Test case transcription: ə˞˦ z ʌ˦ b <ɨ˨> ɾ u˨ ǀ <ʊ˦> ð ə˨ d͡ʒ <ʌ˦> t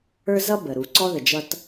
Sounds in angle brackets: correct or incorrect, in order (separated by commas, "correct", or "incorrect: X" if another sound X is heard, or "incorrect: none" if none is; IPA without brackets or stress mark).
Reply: incorrect: ə˨, incorrect: ɔ˦, correct